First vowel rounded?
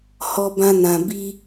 yes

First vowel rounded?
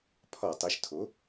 yes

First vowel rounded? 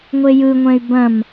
no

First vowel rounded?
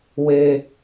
no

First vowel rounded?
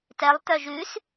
no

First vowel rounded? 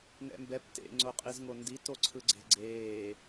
no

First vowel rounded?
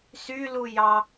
yes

